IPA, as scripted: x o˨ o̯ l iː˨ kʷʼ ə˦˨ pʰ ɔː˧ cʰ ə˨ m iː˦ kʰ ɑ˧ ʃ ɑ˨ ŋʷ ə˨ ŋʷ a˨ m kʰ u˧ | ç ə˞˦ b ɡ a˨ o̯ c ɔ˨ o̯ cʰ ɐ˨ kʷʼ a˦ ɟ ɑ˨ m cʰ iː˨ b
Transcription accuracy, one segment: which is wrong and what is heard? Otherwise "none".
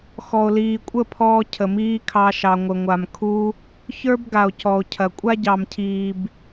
o˨ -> ɔ˨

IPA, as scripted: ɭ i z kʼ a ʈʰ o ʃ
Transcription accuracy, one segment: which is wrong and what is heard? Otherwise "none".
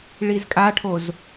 ʃ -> z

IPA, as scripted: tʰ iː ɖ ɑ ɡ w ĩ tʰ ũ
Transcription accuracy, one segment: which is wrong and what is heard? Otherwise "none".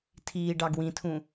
none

